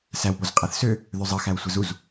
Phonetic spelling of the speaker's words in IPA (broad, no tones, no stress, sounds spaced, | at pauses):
s æ w p o z qʼ æ θ s ø | ð ø zˤ ɯ x æ w sʷ e z u z